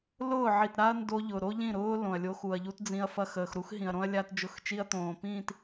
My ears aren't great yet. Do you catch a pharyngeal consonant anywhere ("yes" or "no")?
yes